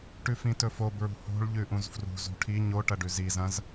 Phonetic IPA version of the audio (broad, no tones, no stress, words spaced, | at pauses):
ʈʉfĩtɵfo bɹṳho̤ɭ ʎʉʔũzfrṳ zṳʈʰi ɲo ʈɐɖʉzi zɐ̃z